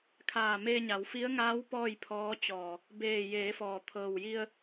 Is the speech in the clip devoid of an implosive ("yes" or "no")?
yes